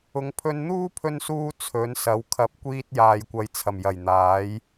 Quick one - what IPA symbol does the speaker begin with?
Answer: ʊ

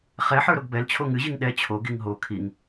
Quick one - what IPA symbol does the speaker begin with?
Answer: χ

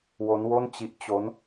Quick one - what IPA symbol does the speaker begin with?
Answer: w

